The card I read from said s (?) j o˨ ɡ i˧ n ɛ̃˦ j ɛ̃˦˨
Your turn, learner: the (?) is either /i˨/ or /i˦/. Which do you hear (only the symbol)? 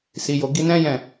i˨